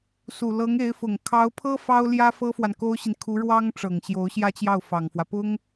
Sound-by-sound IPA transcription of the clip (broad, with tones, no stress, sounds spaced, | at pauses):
s u˨˩ l ɤ˧˥ ŋ e˧˥ ɪ̯ f ʊ˨˩ ŋ kʰ ɑ˧˥ ʊ̯ pʰ ɤ˥ f ɑ˥ ʊ̯ l j ä˥ f ɤ˥ f w a˨ n k o˥ ʊ̯ ɕ i˨ n kʰ u˧˥ ɻ w ɑ˥ ŋ ʈ͡ʂ ɤ˨˩ ŋ ɕ j o˧˥ ʊ̯ ɕ j ä˥ t͡ɕ j ɑ˥˩ ʊ̯ f ɑ˨˩ ŋ f w ä˦ p ʊ˥ ŋ